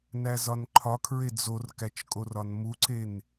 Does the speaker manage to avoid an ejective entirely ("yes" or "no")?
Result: no